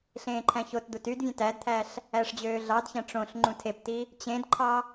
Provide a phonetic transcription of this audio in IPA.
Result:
ɬ ẽː ǃʰ æ̃ ç o t d̪ u t y d vʲ ẽ t æ d t̪ʰ æ ɬ | æ ʂ d͡ʑ øː ɮ ɑ d ç æ̃ ʈ͡ʂ õ ɬ ŋ͡ǃ ũ tʰ e p t i | t͡ɕ ẽ d ǃʰ ɑ

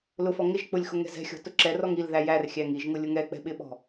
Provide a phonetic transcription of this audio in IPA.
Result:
l ʊ f ɔ ŋ ɪ ʒ k͡p ʊ lʲ x ʊ ŋ ɛ̤ z ɛ̤ xʲ ɔ̤ t ʊ ǁ ɛ r ɔ ŋ i l ð æ j æ r xʲ æ ŋ i ʒ ŋ ʊ lʲ ʊ ŋ ɛ k͡p ɛ̤ ɓ ɪ ɓ ɔ̤

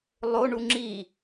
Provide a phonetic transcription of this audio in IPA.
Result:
lˠ o ɳ u ŋ͡ǁ i

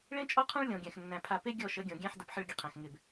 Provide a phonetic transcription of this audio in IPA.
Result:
ɭ ẽ˦ t͡ʃʼ ɔ˦ qʰ ɔ̃˦ ɭ lʲ ɔ̃˨ ɡʲ æ̃˨ x nː æ̃˨ pʰ a˨ p e˦ ɡʲ ɔ˦˨ ʃ ə˨˦ ɡʲ ɔ̃˨ ɡʲ æ̃˦ ħ d ə˨ p ħ ə˦˨ ɭ ɡʲ ə˦ qʰ æ̃˨ x ŋ ɪ˦˨ b

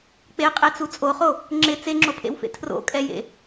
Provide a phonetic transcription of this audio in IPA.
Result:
k͡p e qʼ e t͡s u t͡sʼ o χ o | ŋ͡ǁ ɪ t͡s e ŋ͡ǁ o pʰ ḛ w f ḛ tʰ r o̰ kʼ ɛ j ḛ

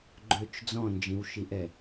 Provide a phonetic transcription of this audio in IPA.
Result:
ɡ͡ǃ ø t͡ʃ d͡z ɔ̃ n d͡ʒ ĩ w ʃ i ʔ ɛ

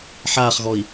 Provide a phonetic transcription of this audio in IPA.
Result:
ħ aː χ ɣ ɔ i̯

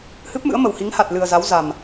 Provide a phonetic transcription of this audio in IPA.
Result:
h ɨ˦˥ p̚ m ɨ̰˧˥ ə̯ m ə˨˩ w h i˨˦ ŋ h a˨˩ t̚ l ɨ˨˩ ə̯ z a˨˦ w z a˨˩ m

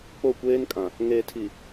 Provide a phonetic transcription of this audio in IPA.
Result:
k͡p o˦˨ kʷ eː˦ n kʼ ã˨ | ŋ eː˨ tʰ i˨

